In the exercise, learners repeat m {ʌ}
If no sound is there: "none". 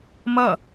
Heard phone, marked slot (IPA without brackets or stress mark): ʌ